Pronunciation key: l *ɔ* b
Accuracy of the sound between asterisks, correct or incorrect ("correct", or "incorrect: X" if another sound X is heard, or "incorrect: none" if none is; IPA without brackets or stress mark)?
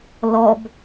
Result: correct